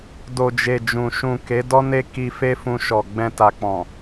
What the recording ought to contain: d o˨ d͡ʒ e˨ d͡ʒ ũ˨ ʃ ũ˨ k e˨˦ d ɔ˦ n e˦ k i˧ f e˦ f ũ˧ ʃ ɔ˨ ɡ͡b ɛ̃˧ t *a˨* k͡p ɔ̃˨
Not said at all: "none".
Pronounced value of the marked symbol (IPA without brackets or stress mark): a˨